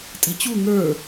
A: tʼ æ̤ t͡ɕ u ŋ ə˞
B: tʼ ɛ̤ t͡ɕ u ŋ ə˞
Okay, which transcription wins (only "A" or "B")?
B